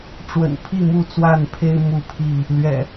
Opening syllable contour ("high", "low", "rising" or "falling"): low